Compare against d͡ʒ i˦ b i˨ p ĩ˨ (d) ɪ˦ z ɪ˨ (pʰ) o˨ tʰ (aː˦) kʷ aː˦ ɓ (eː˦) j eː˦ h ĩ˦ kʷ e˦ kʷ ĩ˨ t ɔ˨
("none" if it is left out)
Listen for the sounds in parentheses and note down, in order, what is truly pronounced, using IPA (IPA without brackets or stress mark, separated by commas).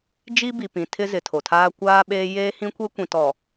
tʰ, tʰ, aː˦, eː˦